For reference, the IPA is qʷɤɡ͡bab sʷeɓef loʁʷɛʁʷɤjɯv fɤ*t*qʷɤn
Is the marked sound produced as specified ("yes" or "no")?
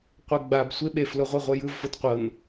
yes